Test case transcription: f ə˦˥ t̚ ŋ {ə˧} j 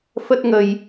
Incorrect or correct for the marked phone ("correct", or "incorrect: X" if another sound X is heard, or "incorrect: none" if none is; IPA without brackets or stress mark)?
correct